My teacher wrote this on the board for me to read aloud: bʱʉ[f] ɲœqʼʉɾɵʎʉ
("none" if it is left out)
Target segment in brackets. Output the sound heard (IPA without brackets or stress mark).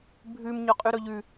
m